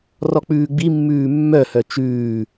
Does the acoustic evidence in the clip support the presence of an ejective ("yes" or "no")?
no